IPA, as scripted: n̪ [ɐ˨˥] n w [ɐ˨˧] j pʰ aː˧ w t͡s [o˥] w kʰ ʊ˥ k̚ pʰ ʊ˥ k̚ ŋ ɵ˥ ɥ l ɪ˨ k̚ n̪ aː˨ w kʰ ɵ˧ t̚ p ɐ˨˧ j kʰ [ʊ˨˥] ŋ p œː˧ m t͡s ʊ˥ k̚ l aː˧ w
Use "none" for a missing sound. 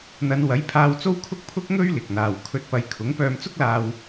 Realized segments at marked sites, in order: ɐ˨˧, ɐ˨˥, o˥, ʊ˨˥

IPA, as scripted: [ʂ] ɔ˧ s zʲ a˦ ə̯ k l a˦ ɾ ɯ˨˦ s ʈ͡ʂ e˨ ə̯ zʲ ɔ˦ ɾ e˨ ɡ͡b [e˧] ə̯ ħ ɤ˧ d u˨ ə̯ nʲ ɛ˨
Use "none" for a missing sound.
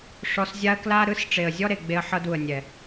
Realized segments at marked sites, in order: ʂ, e˧

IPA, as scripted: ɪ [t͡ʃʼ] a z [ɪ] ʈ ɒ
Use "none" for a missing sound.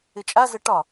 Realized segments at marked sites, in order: t͡ʃʼ, ə

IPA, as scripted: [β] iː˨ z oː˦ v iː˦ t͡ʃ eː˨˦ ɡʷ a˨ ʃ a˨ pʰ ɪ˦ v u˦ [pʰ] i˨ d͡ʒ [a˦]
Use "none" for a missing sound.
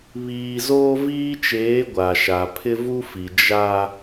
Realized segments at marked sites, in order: β, f, a˦

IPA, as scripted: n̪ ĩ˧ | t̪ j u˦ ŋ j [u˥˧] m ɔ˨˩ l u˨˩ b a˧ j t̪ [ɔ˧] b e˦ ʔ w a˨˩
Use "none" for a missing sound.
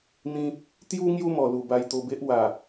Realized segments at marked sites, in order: u˦, o˧

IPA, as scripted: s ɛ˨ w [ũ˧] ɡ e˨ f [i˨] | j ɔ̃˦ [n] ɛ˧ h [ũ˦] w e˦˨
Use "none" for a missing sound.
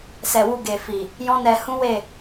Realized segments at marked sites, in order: u˧, i˨, n, ũ˦

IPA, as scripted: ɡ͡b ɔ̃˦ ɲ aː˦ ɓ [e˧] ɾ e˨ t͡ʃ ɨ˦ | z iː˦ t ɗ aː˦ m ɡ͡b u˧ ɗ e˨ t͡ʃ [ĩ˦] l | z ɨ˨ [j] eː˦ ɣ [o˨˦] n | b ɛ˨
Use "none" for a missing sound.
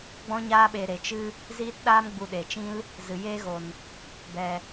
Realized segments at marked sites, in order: e˧, ĩ˦, j, o˨

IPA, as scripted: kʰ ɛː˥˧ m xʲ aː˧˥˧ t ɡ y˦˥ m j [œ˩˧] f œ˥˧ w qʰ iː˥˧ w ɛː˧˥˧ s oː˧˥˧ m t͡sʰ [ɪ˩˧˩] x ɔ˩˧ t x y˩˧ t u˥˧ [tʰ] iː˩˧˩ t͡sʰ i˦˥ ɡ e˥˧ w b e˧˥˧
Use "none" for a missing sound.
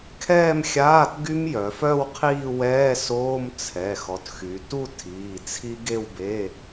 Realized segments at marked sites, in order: œ˩˧, ɛ˩˧˩, tʰ

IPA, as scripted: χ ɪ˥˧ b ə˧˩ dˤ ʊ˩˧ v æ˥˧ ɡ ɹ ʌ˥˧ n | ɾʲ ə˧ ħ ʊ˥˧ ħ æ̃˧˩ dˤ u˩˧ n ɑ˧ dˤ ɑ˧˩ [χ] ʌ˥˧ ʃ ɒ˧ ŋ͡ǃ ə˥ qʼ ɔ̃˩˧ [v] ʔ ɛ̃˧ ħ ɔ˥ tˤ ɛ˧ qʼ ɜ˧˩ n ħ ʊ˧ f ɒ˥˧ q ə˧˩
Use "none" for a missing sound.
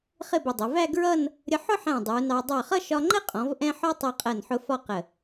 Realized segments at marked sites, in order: χ, v

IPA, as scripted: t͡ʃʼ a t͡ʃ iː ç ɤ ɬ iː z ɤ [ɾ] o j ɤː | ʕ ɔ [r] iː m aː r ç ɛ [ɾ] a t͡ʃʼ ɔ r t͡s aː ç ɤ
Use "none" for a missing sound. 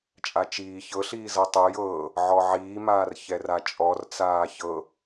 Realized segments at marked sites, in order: tˤ, ʕ, r

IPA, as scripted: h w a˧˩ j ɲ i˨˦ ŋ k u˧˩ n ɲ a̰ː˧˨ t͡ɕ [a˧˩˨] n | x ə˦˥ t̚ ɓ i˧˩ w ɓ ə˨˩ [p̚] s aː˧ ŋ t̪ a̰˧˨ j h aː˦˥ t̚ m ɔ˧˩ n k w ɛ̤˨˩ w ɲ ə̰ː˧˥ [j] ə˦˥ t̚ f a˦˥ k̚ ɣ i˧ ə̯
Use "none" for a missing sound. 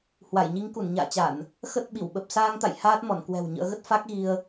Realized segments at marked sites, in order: a˧˩˨, p̚, ɣ

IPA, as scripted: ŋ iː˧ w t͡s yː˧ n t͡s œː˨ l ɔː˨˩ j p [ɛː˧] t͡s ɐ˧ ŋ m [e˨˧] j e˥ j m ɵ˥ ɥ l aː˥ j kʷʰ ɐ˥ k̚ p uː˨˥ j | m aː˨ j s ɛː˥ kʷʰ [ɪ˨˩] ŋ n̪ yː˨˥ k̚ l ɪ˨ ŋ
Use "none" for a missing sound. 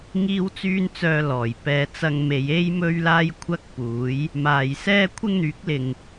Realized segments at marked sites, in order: ɛː˧, e˨˧, ɪ˥

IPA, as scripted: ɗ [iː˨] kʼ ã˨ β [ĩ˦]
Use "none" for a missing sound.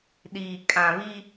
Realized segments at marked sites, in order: iː˨, i˦

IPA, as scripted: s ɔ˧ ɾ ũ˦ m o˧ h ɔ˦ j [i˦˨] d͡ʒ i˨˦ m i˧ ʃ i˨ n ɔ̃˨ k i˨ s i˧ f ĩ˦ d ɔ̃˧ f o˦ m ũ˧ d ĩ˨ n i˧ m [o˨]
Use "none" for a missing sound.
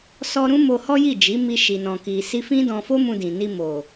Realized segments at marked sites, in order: i˦˨, o˨

